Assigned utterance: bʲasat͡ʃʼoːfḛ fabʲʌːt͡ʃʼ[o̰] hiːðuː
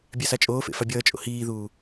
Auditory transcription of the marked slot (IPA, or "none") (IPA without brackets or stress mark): o̰